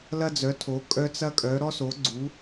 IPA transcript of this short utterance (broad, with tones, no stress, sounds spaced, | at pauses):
l ɐ˦ d͡z œ˨˦ tʰ o˨˦ kʼ œ˦ t͡s ɐ˦ kʼ œ˨˦ ɾ ɔ˦ s o˨˦ ɡ͡ǀ u˨˦